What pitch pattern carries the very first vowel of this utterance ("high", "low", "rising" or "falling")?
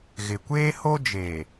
low